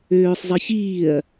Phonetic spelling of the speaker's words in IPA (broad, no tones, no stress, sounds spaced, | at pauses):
øː sˤ zˤ ɨ ç iː ɐ̯